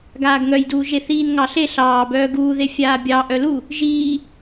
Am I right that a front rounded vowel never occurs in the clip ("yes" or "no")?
no